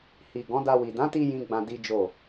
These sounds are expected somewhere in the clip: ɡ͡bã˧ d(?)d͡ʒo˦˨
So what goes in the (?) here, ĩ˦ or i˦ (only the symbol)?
i˦